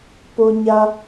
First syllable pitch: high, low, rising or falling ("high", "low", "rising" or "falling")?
high